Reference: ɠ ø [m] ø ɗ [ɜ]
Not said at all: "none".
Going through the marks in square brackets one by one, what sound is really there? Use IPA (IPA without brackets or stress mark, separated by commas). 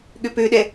p, ɛ